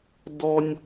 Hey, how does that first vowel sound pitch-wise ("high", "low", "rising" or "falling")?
high